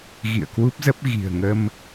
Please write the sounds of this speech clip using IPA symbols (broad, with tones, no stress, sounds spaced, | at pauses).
ɣ ḭ˧˨ ə̯ k w u˦˥ p̚ z ə˦˥ p̚ ɣ i̤˨˩ ə̯ ŋ ə˧ m